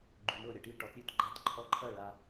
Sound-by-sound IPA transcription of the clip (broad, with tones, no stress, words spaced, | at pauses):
ɡ͡ǃʉ˨mɤ˥˩ɾʲɐ˥˩ʈi˥˩ ʈɒ˧˥t ɾʲʉ˥˩tɡ͡ǃa˧˥˧t ǃʰɔ˧˥˧ǃʰɐ˥˩ ɭa˨